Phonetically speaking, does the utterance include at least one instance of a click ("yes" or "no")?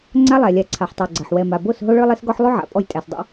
yes